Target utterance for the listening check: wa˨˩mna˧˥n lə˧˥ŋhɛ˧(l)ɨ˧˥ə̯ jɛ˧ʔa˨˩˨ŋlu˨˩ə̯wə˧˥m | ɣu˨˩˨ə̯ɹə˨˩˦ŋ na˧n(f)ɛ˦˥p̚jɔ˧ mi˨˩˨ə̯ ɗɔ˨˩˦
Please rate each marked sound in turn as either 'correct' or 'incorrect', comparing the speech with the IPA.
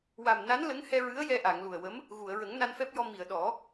incorrect: ɹ, correct

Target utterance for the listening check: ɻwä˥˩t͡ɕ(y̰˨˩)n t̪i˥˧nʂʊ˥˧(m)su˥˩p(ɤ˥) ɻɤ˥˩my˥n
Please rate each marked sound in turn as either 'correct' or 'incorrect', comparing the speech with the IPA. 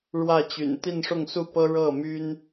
correct, incorrect: ŋ, correct

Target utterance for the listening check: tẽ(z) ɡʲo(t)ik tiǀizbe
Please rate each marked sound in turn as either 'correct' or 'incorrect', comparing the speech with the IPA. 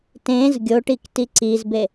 correct, incorrect: ʈ

